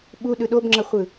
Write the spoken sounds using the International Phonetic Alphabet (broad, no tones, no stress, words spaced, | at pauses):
ɓuɗɯ ɗobŋ͡ǁʌχʷɯ